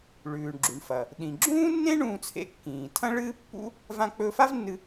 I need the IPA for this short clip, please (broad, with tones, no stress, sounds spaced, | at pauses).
ɭ ʉː˩ ɳ ɡ͡ǁ u˩ ɳ f ɐ˩ | ɗ ĩ˩ ɡ͡ǁ ũː˥ nː ẽ˥ ɳ ũː˧ t͡sʰ ḛ˧ kː ĩː˩ tʰ ɐ̃˥ ɭ ɨː˥ pː ṵ˥ | v ã˧ k͡p ɵ˧ f a˥ v nː ɨ˧